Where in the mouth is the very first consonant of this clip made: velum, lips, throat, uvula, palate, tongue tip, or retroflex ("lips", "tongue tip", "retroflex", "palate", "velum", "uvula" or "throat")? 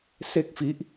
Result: tongue tip